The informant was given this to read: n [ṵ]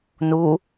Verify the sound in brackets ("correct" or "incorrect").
incorrect